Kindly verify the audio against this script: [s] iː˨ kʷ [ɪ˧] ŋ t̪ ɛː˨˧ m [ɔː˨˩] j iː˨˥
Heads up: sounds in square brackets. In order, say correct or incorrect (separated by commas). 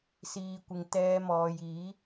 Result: correct, incorrect, incorrect